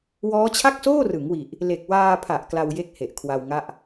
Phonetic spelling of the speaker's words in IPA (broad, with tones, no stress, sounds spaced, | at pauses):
w ɔː˦˥ t͡ɕʰ a˥˩ k̚ s oː˥˩ r ɯ˩˦ ŋ w i˨˩ ʔ | l e˨˩ k̚ w aː˧ pʰ a˨˩ ʔ k l a˧ w j e˦˥ k̚ h e˨˩ ʔ kʰ w a˧ w ŋ a˥˩ ʔ